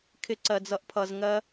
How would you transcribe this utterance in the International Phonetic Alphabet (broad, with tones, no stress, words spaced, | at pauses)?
kʰɪ˦ǀɜ˧d͡zʌ˦ʔpʰʌ˧z ŋɜ˦